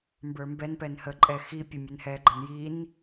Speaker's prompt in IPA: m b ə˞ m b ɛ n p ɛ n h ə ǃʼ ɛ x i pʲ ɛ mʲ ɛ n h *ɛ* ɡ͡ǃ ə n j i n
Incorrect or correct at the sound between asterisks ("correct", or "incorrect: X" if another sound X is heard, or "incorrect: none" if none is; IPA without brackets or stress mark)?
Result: correct